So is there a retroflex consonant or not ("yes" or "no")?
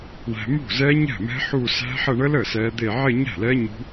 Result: yes